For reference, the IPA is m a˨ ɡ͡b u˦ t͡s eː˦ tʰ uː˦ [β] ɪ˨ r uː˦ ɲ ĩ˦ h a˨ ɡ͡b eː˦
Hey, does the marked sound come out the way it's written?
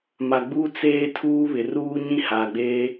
yes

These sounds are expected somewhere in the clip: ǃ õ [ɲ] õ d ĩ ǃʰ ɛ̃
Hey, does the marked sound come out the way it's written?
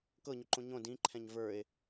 yes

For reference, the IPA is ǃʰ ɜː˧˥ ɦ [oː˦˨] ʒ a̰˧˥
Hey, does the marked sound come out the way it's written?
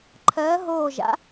yes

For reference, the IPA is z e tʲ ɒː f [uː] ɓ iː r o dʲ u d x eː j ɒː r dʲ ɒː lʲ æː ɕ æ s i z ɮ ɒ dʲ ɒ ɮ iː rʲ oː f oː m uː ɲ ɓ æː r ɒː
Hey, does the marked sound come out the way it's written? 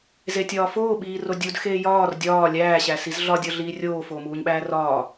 no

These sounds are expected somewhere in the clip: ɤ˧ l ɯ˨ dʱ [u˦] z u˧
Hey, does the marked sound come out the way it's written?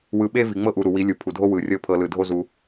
no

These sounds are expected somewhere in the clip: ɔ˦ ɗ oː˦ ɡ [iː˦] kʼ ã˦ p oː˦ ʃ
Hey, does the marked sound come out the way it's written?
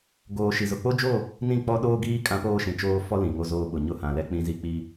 yes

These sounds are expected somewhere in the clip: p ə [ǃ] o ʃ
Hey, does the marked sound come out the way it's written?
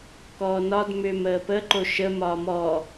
yes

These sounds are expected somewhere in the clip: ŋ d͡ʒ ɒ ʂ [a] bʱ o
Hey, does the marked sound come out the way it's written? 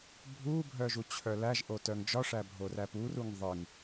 no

